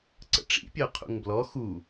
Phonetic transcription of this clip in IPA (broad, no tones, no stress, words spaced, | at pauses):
ǀə̰ʈ͡ʂḭ pʲœqʰṵŋblɔ xu